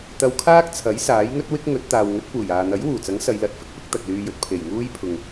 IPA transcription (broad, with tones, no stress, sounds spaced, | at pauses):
t̪ ɐ˧ w kʰ aː˥ k̚ t͡sʰ ɐ˨˥ j s aː˨˥ j ŋ ɵ˥ t̚ w ɪ˥ k̚ ŋ ɵ˨˥ t̚ t̪ aː˨ w ŋ ɵ˨˥ t̚ p uː˨˩ j aː˨ n̪ ɐ˨˥ j w uː˨˩ t͡s ɐ˨˥ ŋ s ɐ˨˧ j l ɐ˨˥ t̚ f ɪ˥ k̚ p ɪ˥ k̚ t̪ ɐ˨ k̚ l yː˧ j ɵ˨˥ t̚ pʰ e˨˩ j ŋ uː˥ j pʰ ʊ˨ ŋ